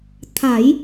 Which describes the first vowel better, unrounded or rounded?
unrounded